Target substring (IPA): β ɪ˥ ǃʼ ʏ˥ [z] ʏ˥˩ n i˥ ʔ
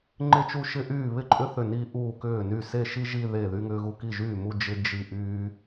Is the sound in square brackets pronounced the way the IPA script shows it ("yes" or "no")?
no